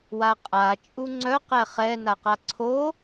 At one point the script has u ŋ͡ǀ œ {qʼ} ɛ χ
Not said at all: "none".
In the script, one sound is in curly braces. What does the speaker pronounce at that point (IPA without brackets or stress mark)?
q